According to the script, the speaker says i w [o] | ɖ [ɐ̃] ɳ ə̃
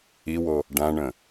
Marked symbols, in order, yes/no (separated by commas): yes, no